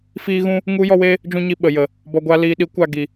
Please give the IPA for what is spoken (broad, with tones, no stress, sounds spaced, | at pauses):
f iː˦ ɣ ũ˦ | ŋ u˦ j ɔ˦ w eː˦ | d͡ʒ ũ˦ ɲ i˧ ɓ ə˨ j ə˨ | b ɔ˧ ɡʷ a˧ l iː˧ ɗ i˨˦ kʷ a˧ ɡ i˨